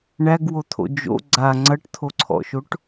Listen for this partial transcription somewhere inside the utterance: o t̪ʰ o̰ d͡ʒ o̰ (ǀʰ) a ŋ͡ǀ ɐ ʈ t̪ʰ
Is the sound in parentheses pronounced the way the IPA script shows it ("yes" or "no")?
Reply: no